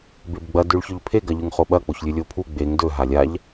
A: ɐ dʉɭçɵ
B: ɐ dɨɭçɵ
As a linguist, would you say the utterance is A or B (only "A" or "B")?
A